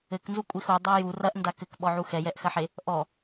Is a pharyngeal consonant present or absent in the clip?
present